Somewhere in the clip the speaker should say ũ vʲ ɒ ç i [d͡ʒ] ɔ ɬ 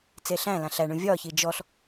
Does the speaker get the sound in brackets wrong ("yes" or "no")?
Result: no